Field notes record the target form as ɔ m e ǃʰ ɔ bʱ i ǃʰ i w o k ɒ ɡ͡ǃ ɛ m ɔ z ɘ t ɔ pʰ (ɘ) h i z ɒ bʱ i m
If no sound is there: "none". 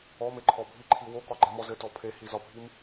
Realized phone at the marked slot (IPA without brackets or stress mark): e